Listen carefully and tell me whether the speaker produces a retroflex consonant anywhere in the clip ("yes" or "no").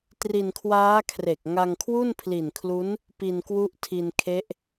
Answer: no